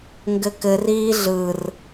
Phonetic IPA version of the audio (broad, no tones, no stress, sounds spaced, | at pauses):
ŋ ɡ ɘ k ɘ r iː ɮ ɯ r